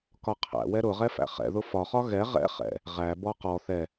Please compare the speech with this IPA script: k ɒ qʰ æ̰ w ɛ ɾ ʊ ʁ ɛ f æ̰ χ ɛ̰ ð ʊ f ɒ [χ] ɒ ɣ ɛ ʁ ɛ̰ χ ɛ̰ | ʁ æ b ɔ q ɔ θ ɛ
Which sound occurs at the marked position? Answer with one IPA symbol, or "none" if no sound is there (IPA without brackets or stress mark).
χ